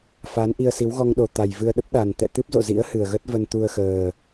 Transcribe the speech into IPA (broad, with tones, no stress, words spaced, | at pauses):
faː˨˦nʔi˧ə̯si˨˦w ɣɔ˧ŋɗo˨˩ t̪a˨˩jvɨ˧ə̯ ɗə˦˥p̚ɗa˨˩n t̪ɛ̰˧˨t̪ɨ˦˥p̚zo̰˧˨zḭ˧˥ə̯ hɨ˨˩ə̯ɣə˦˥t̚ və˧nt̪u˧ə̯xəː˨˩